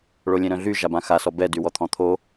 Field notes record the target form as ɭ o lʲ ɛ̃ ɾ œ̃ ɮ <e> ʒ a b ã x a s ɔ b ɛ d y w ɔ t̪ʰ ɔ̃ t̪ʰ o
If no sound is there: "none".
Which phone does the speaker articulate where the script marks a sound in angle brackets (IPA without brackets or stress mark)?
y